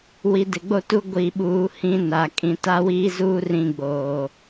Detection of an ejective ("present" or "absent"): present